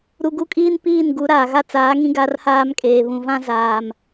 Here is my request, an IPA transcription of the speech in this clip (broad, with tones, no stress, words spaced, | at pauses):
ɾu˨ɡu˦kʼiː˦n piː˦˨nɡu˨˦ ɾaː˨ɣa˦ t͡saː˨˦ ŋĩ˦ ɡa˦rhaː˦mkʼeː˨ βũ˨vã˦ zaː˨m